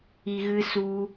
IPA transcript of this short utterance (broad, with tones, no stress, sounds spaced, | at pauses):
i˧ ɣ ɨ˦ s u˧